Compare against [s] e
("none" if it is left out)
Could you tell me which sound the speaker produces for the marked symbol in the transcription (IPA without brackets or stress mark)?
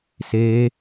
s